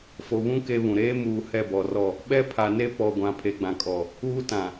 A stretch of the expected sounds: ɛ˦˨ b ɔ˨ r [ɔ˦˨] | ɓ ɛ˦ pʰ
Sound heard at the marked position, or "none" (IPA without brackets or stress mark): ɔ˦˨